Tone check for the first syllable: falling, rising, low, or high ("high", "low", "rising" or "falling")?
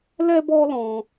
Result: high